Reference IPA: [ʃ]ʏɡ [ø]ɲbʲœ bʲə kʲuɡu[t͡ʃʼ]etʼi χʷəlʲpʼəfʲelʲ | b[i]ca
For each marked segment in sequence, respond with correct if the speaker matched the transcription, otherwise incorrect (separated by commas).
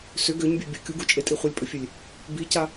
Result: incorrect, correct, correct, correct